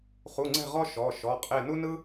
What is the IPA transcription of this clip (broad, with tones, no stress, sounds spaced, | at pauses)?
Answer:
χ u˧˥˧ ŋ͡ǀ ɛ̤˥˧ ʁ ɔ˥ ʃ ɔ˧˥˧ ʃ ɔ˧˥˧ qʼ e˥˧ n u˥ n ɯ˥